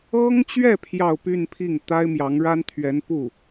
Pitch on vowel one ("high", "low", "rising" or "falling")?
high